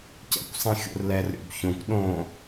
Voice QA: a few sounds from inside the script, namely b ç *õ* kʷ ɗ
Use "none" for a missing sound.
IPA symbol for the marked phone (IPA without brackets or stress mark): õ